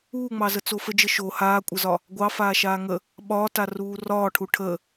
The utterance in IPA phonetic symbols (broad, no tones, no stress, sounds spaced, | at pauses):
uː ŋ͡m ɑ z ə t͡s o f ə d͡ʒ ə ʃ o h aː kʷʼ ə z ɒ | ɡʷ ɑ f aː ʃ aː ŋ ə | ɓ ɒː t a r uː r ɒː ʈʰ u ʈʰ ə